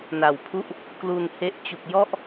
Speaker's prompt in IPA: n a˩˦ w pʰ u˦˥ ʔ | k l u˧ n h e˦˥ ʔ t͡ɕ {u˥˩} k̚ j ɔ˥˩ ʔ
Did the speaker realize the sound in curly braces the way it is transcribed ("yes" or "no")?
no